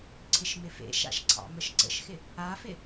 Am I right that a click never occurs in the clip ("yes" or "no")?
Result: no